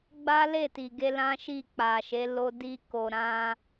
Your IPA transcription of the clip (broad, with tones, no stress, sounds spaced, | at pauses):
ɡ͡b a˦ l e˦˨ t i˨ ɡ e˧ l ã˦ ʃ i˦˨ k͡p a˨ ʃ e˨˦ l o˧ d i˧ k o˨ ɾ ã˧